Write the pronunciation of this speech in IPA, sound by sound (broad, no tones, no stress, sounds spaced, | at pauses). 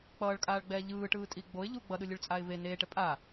k͡p ʌː ɭ kʼ aː ɭ ɡ͡b ɛː ʎ ɯː ʈ ɯː tʼ i ɡ͡b o ɪ̯ ʎ u ɡ͡b ʌ ɗ ɯ lʲ ɯ ɭ t͡sʼ a ɪ̯ v e n eː ʈ ɛ pʼ a